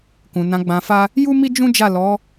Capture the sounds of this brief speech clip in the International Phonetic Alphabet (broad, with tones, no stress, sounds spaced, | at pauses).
k ũ˨ n ã˨˦ ɡ͡b ã˧ f a˦ | j u˦ m i˦ d͡ʒ ũ˦ d͡ʒ a˦˨ l ɔ˨˦